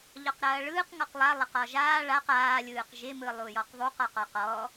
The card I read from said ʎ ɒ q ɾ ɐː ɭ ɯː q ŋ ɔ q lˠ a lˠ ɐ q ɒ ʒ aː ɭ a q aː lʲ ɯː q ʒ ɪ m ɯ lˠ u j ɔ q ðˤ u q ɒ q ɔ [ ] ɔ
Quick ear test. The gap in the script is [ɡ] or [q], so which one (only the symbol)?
q